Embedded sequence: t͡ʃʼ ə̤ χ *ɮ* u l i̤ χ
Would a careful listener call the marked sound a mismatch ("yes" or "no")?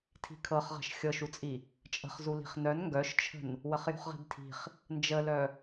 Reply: yes